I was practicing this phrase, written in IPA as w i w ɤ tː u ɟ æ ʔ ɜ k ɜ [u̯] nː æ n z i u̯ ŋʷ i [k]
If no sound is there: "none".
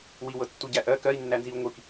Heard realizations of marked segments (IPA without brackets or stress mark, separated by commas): i̯, k